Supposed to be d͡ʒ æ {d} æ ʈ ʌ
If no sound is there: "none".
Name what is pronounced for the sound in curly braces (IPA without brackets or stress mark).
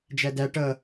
d